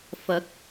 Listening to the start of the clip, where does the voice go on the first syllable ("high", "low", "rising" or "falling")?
rising